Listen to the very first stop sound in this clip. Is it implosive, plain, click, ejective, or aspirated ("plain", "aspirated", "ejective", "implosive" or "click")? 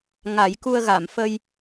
plain